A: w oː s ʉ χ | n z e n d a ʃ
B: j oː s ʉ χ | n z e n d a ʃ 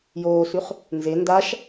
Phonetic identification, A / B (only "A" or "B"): B